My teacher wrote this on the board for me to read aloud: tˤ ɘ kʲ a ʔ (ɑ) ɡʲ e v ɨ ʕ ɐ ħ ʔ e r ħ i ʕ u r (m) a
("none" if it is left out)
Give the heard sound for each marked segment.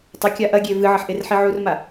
ɐ, m

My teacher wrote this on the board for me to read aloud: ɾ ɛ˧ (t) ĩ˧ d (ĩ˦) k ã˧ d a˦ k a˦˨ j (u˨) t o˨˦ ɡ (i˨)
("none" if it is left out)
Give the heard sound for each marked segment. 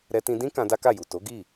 t, ĩ˦, u˨, i˦˨

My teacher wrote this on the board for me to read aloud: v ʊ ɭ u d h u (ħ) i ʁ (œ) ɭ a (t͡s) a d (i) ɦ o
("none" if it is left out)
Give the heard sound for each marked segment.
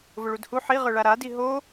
ħ, œ, ɾ, i

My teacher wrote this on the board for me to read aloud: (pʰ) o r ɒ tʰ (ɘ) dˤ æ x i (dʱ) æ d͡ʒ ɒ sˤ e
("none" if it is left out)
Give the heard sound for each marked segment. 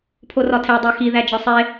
pʰ, e, ð

